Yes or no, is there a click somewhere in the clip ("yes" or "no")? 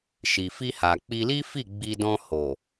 no